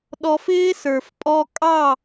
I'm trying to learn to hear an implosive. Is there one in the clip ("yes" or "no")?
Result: yes